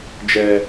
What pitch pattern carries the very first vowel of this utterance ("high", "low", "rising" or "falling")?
low